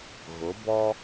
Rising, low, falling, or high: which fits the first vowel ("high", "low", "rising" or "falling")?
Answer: rising